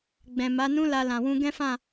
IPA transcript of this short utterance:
ɡ͡b ɛ̃˨ m a˨˦ n ũ˦ l a˧ l ã˨ w ũ˧ ɡ ɛ̃˦ f ã˦˨

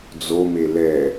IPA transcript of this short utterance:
d͡z o m e l ɛ

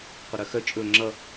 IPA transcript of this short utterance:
qʷ ə ɾ œ x œ t͡ʃʼ ɵ ŋ͡ǁ ʌ

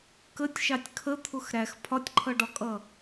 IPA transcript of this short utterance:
k ə tʲ ʃ ɑ tʲ kʰ ə t̪ʰ ʊ x ɾ æ x pʰ ɒ tʲ ǃʰ ʌ ɖ ɒ kʼ ʌ

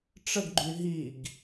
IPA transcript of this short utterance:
ʈ͡ʂ ə ɡ ɡ͡ǃ y ɦ i ɡ

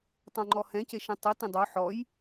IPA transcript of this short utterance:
tˤ õ ŋ͡ǃ ɔ h ɛ̃ c e ʃ ɛ̃ tˤ ɯ t ĩ dˤ o ħ ɔ j

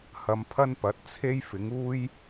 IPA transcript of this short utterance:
h ɐ˨˧ m pʰ ɐ˥ n p ɐ˨˥ t̚ t͡sʰ e˥ j f ɪ˨˥ ŋ uː˥ j

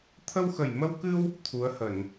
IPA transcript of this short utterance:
t̪ʰ ə˧ w x ə˨˩ j m ə˧ w k ɨ˧ w | t̪ʰ u˨˦ ə̯ h ə˧˩˨ n

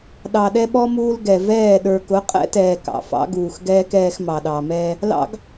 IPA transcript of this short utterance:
ɗ ɑ˨ ɗ ɛ˦ ɓ ɔ˦ m uː˦ l ɡ ɛ˨ v ɛː˦˨ ɗ ə˞˨ k ʊ˨˦ qʼ ɛ̰˦ t ɛː˨ k ɑ̰˨ f ɑ̰˦ ɡ uː˨ x ɡ ɛː˦ k ɛː˦ x m ɑ˨ ɗ ɑ˨ m ɛ˦ | l ɑ̰˦ ɡ

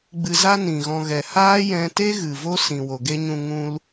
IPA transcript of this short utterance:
ɡ͡b ɨ˧ z a˦ n ĩ˨ ɣ ɔ̃˧ ɣ ɛ˨ h aː˦ j ɛ̃˧ t e˦ ɣ ɨ˨ v o˦ s ĩ˨ w o˨ ɡ e˦ ɲ ũ˧ ŋ ũ˧ l

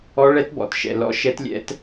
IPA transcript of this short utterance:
ɔ˦˥ ɭ ɛ˦˥ t b ɔ̰˧ t ʃ ɛ̰˧ l ɔ̰˦˥ ʃ ɛ˦˥ t lʲ ɛ̰˦˥ t

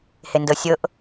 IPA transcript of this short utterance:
h e n d ɤ sʲ ɤ ʔ

